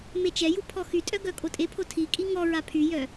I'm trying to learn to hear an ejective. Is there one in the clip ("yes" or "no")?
yes